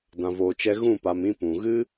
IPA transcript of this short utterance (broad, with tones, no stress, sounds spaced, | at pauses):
d ã˨ v oː˨ t͡ʃ ɛ˧ ɣ ũ˦˨ p a˨ m ĩ˧ p ũ˨ ɣ ɨ˦